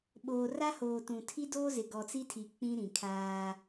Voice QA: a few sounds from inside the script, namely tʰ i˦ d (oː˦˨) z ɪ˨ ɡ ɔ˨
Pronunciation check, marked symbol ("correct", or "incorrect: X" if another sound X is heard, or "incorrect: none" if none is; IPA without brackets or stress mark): incorrect: oː˦